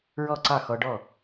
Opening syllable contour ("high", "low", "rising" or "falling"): falling